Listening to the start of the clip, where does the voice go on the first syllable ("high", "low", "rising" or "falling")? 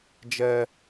high